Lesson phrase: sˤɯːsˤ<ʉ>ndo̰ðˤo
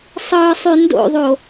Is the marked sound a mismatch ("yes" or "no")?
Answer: no